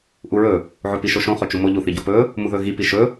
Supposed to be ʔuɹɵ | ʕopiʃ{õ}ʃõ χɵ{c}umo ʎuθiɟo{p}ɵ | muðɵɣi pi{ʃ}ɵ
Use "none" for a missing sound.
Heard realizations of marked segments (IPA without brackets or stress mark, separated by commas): o, t͡ʃ, p, ʃ